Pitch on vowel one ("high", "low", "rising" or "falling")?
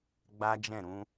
high